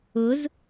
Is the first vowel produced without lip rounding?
no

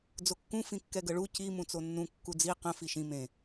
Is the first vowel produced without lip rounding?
no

